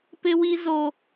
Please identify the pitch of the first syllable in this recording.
high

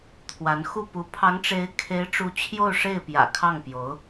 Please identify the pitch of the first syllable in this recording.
rising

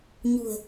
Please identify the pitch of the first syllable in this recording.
low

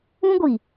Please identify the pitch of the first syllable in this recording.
high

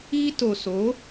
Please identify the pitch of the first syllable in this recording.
high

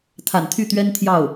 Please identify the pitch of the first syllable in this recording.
low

